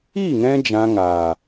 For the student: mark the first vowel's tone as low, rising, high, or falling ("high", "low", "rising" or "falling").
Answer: falling